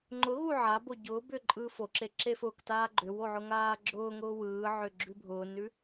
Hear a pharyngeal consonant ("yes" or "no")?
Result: yes